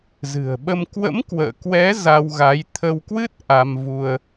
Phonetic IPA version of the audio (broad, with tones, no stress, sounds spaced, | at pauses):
z ɨ̤˨˩ ə̯ ɓ ə˧ m k w ə̰˧˥ m k w ə̰ː˧˨ k w ɛ˨˦ z a˧ w ɣ a˨˦ j t̪ʰ ə˧ w k w ɨ˦˥ t̚ ʔ a˧ m v u˧ ə̯